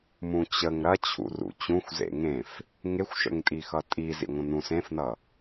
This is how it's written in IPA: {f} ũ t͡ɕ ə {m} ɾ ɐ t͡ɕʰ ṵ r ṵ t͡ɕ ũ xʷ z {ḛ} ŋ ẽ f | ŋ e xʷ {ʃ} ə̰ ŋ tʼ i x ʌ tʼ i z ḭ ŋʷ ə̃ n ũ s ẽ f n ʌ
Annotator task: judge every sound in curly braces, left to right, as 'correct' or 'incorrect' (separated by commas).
incorrect, incorrect, correct, correct